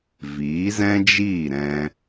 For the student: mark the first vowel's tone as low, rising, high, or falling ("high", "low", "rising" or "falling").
rising